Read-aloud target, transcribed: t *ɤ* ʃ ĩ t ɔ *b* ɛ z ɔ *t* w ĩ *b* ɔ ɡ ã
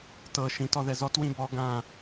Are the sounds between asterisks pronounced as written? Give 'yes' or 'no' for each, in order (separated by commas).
yes, no, yes, yes